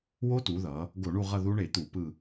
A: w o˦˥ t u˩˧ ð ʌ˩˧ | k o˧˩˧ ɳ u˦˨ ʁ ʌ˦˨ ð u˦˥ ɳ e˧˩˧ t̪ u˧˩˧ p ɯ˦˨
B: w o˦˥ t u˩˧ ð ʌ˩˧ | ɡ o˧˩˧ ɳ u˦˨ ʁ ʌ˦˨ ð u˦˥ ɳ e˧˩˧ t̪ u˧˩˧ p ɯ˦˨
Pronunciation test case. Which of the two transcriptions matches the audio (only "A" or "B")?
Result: B